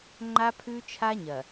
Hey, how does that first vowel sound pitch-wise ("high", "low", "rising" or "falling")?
high